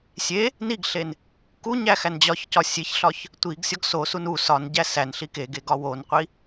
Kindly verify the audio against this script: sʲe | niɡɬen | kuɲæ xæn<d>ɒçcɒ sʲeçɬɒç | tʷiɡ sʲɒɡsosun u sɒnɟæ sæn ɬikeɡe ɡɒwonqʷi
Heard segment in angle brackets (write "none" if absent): d͡ʑ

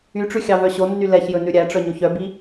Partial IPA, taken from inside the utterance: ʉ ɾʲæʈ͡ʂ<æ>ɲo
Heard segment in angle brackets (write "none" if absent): œ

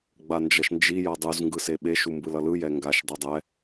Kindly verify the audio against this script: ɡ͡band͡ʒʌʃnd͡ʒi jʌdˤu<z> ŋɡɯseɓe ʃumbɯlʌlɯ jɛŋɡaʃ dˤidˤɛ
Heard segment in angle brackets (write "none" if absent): z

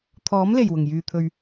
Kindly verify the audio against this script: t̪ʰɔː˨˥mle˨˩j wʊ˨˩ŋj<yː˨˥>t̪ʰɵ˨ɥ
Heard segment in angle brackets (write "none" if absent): yː˨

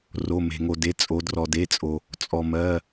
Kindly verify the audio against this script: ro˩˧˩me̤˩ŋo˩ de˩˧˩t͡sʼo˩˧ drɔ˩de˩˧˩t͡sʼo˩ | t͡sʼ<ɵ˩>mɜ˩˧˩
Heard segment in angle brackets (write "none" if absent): ɔ˩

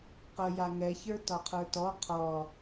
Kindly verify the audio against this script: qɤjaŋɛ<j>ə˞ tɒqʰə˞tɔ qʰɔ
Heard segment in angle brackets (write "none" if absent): ç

